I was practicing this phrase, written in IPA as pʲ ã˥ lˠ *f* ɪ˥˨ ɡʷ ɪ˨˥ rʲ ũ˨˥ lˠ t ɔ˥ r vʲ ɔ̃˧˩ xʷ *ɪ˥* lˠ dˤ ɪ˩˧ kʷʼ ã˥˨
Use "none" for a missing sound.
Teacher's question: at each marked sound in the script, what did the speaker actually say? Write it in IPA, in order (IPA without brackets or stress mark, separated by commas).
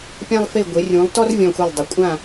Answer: f, ɪ˧˩